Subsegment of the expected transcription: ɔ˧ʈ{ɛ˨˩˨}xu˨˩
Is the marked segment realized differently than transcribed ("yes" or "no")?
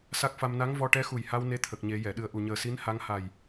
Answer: yes